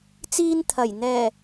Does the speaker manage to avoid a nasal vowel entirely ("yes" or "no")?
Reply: yes